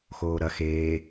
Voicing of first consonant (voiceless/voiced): voiceless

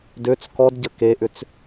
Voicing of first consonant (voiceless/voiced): voiced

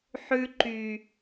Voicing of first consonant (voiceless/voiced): voiceless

